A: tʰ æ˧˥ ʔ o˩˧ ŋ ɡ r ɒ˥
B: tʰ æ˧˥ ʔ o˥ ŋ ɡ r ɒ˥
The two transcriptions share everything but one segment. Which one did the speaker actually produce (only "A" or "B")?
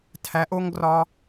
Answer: B